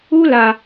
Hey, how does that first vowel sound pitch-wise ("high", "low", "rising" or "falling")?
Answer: high